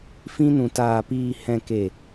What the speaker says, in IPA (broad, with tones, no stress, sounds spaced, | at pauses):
f ĩ˧ n ũ˨ t aː˨ p iː˨ h ɛ̃˨ k e˨